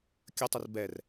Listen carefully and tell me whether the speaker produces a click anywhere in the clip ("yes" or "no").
no